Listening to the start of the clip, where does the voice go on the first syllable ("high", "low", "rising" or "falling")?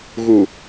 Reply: low